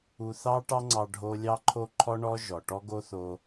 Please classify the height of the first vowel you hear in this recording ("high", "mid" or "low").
high